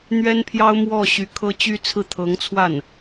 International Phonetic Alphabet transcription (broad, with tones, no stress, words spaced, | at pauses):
n̪ɥɛ˥npʰjɑ˥ʊ̯ mwɔ˥˩ ɕy˧˥kʰɤ˥t͡ɕy˥ t͡sʰɹ̩˥˩ t̪ʰɤ˧˥ŋt͡sʰwa˥˩n